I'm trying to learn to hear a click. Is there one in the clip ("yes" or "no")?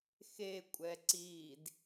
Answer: yes